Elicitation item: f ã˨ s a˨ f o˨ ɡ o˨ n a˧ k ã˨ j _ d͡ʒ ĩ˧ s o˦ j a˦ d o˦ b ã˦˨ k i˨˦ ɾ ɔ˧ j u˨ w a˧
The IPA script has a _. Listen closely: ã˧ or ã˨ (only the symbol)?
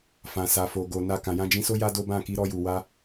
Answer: ã˧